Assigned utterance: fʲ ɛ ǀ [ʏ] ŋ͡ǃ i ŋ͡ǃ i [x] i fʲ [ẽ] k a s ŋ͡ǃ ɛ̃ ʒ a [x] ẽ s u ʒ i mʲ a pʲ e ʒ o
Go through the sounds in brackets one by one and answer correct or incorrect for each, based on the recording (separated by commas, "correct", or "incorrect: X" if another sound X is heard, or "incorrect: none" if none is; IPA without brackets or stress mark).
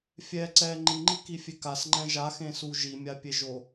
incorrect: ɛ, incorrect: k, incorrect: e, correct